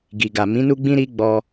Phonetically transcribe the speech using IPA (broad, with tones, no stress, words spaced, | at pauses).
ɡi˨ɡa˨ mĩ˨˦ nu˦ɡ͡bĩ˦ɾi˦ ɡ͡bɔ˧